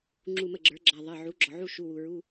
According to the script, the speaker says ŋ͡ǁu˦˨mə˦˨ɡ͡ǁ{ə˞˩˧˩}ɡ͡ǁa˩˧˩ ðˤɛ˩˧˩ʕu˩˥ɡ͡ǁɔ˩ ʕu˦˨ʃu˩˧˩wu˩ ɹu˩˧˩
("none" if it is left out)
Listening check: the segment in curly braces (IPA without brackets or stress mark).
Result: ə˞˩˥